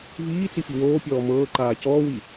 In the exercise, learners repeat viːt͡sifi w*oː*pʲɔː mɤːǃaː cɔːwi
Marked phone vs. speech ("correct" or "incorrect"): correct